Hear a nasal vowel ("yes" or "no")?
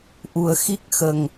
no